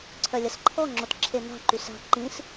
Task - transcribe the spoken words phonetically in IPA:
ǀʰœlʲɐsǃʰɔ ŋ͡ǁotǁʰena̤ ǃysa̤ ǃĩs

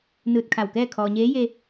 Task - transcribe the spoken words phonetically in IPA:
nɯː˧˩t̚ kʰa˧˩wkɛː˥˨ kʰɔː˩ɲeː˧˥ je˧

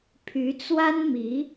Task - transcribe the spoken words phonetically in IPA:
pʰy˧˥t͡swa˥nmi˧˥

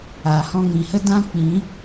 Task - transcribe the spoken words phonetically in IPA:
aː˨hɔ̃˧ŋĩ˨hə˦ dã˦ k͡pĩ˨˦

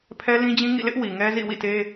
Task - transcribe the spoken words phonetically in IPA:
pʰɛ˦lĩ˦d͡ʑĩ˦ ŋḭ˦˨lɪ˦ʔ wi˨ŋɛ˦zḭ˦˨ wḭ˦˨te˦

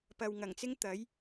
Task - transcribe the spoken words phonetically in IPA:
pɐ˨wŋɐ˨˩ŋt͡sɪ˥ŋ t̪ɐ˨˥j

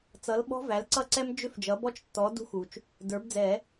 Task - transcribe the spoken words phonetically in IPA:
t͡sʌ˩˥lɓɔ̤˦˥ væ˩˥l ǀʌ˦˥ǀɛ˦˥m d͡ʒʏ˦˥f d͡ʒʌ˩˥ bɔ˦˥t͡ʃtːɔ˩˥ dṳ˦˥xu˩t͡ʃ | də˞˩˥bd͡zɛ˨˩˦

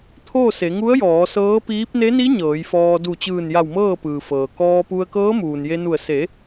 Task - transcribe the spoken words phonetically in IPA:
t̪ʰoː˥˨se˩˧ŋu˧˥ə̯jɔː˩˧ sɤː˧˥piː˧˥p̚ ne˧˥ni˧˥ ɲɤː˩˧jfɔː˧ du˧˩t͡ɕɯː˧˩nja˧˩w mɤː˥˨pɯː˩fɤː˩ kɔː˧pu˧ə̯ kɤː˧˥muː˩nje˧nu˧˩ə̯ se˩˧

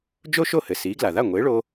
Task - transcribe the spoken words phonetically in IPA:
d͡ʒo˥ʃo˥˩hɘ˩ siː˩˥ɡla˩ða˥˩ ŋʷe˩˥ɭo˧

